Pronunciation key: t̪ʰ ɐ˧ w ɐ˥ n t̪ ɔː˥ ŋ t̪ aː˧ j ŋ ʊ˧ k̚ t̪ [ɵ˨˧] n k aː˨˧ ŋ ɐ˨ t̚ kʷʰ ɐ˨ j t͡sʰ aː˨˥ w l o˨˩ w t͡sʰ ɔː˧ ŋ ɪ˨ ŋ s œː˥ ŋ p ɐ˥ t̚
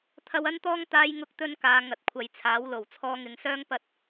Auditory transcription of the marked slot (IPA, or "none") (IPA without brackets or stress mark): ɵ˥